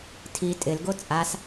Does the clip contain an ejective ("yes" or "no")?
yes